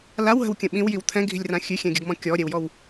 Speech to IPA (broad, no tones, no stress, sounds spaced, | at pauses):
l a w ɦ ə̤ w kʲ ə̃ ɓ ĩ w j i w t̪ʰ ɛ̃ ɡʱ i̤ lʲ r ã xʲ ʉ xʲ ɛ̃ ɡʲ ə ɡ m ɔ̃ kʲ ɔ ɾʲ ɛ w j ɔ w